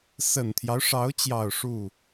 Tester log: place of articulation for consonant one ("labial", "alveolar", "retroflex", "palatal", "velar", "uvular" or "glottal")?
alveolar